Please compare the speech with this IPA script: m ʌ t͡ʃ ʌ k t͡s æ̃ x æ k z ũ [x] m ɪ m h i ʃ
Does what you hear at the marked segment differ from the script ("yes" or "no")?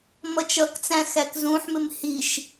yes